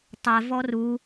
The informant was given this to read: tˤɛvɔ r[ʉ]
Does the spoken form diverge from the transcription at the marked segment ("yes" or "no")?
yes